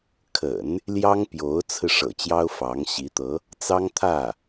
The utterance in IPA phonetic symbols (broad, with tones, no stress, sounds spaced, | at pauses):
kʰ ə̰˨˩˦ n | l j ɑ˥ ŋ p j o˧˥ ʊ̯ t͡sʰ ɹ̩˧ ʂ ɤ̰˨˩ t͡ɕ j ɑ˥ ʊ̯ f ɑ˧˥ ŋ ɕ i˧˥ t̪ ɤ˧˥ | t͡s ɑ˥ ŋ t̪ʰ ä˥˩